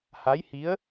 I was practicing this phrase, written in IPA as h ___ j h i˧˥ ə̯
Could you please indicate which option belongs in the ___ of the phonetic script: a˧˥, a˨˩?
a˧˥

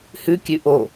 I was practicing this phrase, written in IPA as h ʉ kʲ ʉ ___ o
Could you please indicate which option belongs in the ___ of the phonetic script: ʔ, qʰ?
ʔ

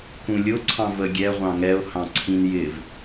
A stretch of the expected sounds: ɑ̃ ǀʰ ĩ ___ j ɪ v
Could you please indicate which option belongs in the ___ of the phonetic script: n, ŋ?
n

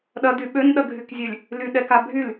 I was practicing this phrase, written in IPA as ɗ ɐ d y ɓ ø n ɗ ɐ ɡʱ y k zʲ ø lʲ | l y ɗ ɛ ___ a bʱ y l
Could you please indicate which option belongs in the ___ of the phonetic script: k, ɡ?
k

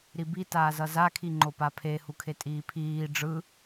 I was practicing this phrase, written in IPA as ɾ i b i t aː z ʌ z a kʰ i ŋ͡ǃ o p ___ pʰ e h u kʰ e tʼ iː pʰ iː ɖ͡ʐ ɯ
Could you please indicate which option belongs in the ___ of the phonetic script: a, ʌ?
a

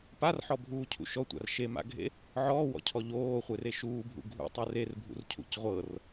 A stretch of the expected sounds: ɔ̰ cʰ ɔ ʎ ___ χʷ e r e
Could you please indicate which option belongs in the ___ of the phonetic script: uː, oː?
oː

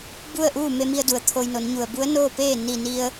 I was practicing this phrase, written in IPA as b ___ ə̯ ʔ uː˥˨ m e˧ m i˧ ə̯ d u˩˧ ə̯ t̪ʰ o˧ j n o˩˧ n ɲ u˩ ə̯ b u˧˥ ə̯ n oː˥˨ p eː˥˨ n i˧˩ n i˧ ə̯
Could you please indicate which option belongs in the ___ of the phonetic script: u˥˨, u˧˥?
u˥˨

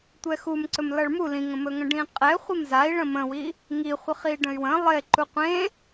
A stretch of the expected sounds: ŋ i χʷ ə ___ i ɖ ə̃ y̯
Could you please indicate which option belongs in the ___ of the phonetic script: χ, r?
χ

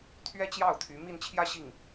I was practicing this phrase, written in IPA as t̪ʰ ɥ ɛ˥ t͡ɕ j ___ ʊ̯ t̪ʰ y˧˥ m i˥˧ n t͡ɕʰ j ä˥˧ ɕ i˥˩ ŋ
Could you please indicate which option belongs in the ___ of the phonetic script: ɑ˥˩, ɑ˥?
ɑ˥˩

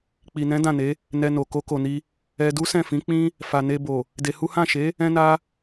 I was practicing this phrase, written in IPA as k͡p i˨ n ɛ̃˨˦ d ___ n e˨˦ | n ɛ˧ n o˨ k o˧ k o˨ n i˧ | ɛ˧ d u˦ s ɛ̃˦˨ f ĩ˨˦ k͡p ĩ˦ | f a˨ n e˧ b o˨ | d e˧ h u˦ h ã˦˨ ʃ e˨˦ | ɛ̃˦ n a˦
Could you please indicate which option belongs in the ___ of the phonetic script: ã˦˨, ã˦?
ã˦˨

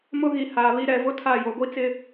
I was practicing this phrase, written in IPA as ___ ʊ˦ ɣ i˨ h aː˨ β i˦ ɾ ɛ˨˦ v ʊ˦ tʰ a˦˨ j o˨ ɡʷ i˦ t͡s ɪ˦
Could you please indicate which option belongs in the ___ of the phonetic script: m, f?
m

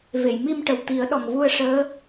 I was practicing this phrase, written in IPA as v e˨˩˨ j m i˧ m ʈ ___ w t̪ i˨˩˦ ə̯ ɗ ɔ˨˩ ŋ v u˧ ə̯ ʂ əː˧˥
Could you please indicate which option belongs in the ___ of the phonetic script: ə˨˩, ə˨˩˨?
ə˨˩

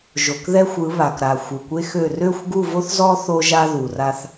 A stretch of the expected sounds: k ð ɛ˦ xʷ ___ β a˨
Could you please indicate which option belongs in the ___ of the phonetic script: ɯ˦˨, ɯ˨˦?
ɯ˨˦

